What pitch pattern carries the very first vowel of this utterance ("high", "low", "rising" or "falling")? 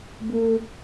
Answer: high